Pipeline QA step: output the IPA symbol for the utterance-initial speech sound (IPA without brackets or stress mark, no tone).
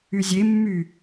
y